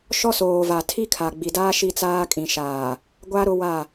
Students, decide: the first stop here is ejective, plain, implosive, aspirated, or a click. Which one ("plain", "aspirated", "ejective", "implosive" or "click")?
aspirated